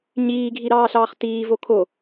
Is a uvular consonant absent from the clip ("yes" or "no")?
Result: no